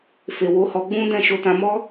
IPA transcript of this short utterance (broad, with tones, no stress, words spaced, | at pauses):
fe˨wo˨˦hɔ˧ ɡ͡bũ˦ dɛ̃˦˨ʃo˧tã˧ mɔ˦